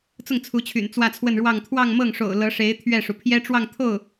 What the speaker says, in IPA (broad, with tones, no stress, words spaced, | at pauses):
t͡sʊ˥˩ŋt͡sʰu˧˥t͡ɕʰy̰˨˩n t͡swä˥˧t͡sʰwə˥˧nɻwɑ˥˧ŋ t̪ʰwɑ˥˧ŋmɤ˥˩ŋʂo̰˨˩ʊ̯ lɤ˧˥ʂe˧˥ɪ̯ t̪ʰɥɛ˥˩ʂu˩ pʰjɛ˥ʈ͡ʂwɑ˥˧ŋt̪ʰo˥˩ʊ̯